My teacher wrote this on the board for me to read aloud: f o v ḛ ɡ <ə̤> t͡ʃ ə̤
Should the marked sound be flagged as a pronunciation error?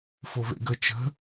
yes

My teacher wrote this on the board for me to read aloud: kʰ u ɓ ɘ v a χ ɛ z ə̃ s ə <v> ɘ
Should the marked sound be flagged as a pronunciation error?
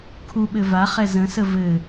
no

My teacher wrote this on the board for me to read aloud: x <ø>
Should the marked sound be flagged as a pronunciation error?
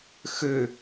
no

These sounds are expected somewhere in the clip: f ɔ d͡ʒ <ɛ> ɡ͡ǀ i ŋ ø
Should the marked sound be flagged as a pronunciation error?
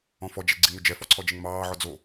no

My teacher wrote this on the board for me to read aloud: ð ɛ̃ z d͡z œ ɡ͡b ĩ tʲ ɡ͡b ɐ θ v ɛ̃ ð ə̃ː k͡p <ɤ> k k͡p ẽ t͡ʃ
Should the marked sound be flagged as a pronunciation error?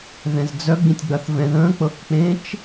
no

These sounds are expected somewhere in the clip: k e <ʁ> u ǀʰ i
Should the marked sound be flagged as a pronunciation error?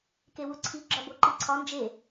yes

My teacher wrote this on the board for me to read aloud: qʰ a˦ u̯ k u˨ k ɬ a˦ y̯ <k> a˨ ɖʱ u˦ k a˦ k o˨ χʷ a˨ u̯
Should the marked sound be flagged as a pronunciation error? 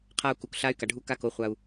no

